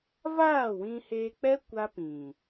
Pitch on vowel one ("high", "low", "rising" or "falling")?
falling